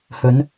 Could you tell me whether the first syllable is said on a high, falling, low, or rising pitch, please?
rising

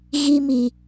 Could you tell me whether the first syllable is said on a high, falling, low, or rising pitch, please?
high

